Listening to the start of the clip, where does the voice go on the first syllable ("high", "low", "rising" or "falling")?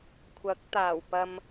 rising